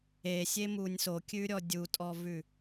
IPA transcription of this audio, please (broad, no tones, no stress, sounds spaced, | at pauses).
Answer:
e sʲ e m u nʲ s o kʲ ʉ ɾʲ ɔ dʲ u tʼ ɔ v ʉ